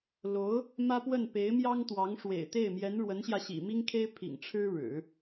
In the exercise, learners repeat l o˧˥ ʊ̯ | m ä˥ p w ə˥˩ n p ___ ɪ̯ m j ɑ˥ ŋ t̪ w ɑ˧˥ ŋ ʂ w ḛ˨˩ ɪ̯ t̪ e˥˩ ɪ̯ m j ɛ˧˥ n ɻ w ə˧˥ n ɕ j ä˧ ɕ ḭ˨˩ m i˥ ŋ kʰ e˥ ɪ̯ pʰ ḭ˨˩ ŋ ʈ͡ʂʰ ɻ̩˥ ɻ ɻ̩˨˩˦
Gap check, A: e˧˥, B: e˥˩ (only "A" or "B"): A